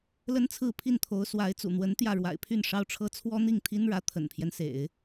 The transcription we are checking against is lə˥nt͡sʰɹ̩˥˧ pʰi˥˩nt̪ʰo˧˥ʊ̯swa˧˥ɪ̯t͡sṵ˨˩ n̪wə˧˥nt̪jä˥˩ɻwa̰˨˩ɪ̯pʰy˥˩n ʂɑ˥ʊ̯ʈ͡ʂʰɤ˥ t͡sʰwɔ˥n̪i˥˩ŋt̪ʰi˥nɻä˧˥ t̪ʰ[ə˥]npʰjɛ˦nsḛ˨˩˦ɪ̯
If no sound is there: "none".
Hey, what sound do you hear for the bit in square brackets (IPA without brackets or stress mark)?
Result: ə̰˨˩